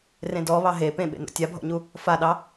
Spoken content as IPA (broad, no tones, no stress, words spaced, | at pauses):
rẽdɔ βɑɦe pẽɓḛno̰ tʲabʱɔ̰ɲu | faɗɑ